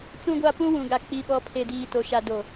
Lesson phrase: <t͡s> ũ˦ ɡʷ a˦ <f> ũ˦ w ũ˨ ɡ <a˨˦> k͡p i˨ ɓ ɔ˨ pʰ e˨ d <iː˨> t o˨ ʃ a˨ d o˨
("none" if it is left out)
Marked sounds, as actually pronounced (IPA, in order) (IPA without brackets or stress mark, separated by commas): t͡s, p, a˨, iː˨